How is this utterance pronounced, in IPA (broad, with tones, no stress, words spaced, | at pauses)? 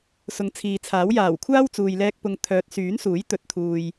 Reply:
sʊ˨˥ŋt͡sʰiː˨t͡sʰaː˨˥w jaː˨˩wkʷʰaː˥wt͡suː˨jlɛː˧k̚ pʊ˨ŋ t̪ʰœː˨t̚syː˨˥nsuː˨˥j t̪ɵ˨˥t̚t̪ʰuː˨j